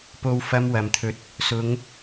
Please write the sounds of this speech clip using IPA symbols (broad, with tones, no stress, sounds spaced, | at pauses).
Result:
p o˧ w f ɐ˧ m w ɐ˨˩ m t̪ʰ ɵ˨˥ t̚ | s ʊ˨˧ ŋ